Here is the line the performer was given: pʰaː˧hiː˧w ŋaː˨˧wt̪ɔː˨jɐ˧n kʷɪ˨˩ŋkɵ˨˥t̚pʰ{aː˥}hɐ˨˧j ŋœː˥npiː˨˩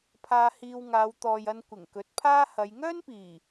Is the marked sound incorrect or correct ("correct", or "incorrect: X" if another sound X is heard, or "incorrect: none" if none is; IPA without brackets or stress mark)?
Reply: correct